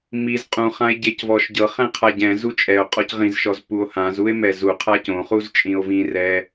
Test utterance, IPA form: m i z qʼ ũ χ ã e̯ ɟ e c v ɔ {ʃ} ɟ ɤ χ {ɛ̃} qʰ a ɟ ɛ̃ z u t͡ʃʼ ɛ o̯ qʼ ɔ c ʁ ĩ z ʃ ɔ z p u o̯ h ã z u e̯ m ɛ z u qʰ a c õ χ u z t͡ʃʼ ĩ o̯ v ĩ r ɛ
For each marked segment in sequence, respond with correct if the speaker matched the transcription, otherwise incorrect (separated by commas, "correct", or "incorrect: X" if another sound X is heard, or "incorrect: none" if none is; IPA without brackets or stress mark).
correct, correct